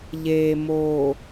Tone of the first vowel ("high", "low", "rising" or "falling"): low